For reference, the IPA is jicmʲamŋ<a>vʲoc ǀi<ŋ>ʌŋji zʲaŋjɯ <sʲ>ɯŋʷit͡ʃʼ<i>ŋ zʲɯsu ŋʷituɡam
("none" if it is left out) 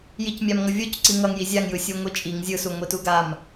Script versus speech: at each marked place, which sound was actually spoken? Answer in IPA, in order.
ʌ, ŋ, sʲ, i

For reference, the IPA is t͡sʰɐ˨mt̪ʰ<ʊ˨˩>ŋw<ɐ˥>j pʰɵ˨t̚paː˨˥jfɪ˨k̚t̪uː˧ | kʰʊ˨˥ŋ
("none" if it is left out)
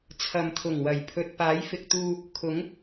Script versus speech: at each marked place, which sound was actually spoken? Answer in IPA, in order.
ʊ˨˩, ɐ˨˩

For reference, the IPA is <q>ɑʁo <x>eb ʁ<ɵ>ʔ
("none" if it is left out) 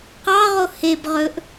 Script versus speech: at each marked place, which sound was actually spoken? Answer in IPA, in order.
q, h, ɵ

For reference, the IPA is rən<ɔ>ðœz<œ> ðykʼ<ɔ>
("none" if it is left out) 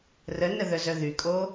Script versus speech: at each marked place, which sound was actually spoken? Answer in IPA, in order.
ə, œ, o

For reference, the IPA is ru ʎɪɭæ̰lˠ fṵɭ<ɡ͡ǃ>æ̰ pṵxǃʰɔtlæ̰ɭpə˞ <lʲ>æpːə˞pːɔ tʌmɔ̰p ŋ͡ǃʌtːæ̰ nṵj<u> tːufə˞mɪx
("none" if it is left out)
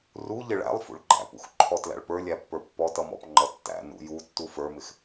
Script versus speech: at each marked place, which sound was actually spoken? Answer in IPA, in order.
ɡ͡ǃ, lʲ, u

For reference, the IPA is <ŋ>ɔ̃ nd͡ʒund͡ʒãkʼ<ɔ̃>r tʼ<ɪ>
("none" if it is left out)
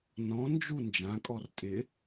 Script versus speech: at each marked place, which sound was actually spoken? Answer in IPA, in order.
n, ɔ, ɪ

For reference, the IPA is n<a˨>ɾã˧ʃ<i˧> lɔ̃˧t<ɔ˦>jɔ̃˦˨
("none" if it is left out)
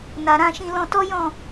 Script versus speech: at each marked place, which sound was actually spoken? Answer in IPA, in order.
a˨, ĩ˧, ɔ˦

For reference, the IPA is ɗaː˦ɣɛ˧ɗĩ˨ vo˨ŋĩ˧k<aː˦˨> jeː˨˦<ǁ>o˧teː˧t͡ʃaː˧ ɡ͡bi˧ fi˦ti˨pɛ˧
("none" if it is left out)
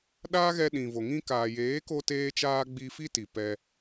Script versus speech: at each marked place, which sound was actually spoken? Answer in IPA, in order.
aː˨, k

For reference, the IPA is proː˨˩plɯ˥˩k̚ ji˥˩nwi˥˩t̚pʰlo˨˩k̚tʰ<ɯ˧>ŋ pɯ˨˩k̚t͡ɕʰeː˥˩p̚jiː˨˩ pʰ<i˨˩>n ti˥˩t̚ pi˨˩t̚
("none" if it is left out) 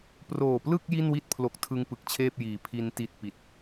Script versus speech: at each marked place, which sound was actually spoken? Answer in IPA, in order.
ɯ˧, i˧

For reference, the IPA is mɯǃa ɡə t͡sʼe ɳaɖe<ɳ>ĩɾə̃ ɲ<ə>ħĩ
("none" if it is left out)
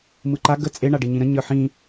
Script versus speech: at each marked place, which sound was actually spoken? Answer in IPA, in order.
ɲ, ə˞

